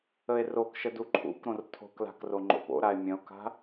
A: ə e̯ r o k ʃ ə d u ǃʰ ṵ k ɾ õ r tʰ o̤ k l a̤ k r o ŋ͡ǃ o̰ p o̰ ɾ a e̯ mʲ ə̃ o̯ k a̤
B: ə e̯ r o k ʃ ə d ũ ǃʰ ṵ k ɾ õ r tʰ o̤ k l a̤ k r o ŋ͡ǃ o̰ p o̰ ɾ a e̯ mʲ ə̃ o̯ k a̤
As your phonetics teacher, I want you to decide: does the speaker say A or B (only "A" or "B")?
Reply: A